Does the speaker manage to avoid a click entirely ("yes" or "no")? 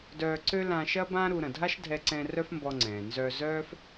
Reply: no